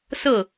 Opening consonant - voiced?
no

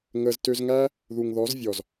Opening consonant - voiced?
yes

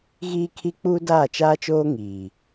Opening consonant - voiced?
yes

